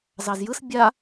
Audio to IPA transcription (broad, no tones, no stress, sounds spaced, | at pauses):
z ɑ z j ɯ s bʲ a